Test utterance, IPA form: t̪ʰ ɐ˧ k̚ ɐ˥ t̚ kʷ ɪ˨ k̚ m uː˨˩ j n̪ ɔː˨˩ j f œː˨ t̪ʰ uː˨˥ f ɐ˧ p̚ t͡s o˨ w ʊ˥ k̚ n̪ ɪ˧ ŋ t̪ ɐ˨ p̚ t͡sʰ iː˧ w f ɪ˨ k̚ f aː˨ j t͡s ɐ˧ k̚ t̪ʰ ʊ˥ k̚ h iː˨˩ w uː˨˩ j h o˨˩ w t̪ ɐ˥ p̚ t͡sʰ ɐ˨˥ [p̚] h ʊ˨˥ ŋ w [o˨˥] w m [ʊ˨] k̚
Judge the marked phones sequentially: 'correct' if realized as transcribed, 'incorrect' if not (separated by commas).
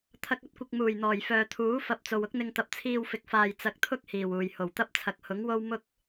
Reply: incorrect, incorrect, incorrect